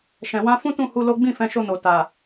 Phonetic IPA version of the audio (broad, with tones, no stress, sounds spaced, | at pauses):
ʃ ɛ̃˨ w ã˧ f ũ˦ t ũ˦˨ h u˧ l o˦ ɡ͡b ĩ˦˨ f ɛ̃˧ ʃ o˧ n o˨ t a˨